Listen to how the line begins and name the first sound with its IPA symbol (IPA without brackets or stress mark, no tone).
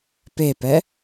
p